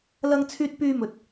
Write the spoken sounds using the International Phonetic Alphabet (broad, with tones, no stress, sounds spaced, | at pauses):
l ɐ˧ ŋ t͡sʰ yː˧ t̚ p yː˧ m ɵ˨ t̚